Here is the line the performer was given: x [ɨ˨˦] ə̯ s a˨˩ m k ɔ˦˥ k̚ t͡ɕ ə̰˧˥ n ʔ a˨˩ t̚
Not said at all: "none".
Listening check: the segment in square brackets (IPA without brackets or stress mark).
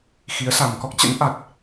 i˨˦